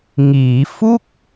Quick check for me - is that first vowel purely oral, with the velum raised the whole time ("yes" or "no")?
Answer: yes